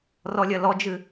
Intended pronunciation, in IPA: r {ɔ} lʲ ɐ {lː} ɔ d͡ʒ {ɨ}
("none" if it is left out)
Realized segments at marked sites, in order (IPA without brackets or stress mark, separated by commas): ɔ, l, ɨ